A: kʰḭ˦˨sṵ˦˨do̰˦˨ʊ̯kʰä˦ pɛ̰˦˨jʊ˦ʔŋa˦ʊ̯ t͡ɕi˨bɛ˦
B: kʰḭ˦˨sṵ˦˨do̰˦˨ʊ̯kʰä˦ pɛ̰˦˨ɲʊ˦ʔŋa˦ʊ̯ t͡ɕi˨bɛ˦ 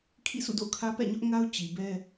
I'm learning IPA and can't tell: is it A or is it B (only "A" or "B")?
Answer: B